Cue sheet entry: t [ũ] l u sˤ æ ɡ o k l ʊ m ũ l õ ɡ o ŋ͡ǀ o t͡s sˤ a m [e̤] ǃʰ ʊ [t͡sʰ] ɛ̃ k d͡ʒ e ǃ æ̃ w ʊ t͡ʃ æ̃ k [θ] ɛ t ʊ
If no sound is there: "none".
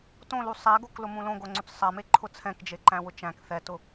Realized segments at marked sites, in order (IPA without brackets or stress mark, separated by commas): õ, e, t͡sʰ, θ